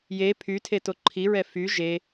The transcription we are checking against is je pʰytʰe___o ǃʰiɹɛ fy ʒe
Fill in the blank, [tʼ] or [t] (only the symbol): t